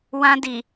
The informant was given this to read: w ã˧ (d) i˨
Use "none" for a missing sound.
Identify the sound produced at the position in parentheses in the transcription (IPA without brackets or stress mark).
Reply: d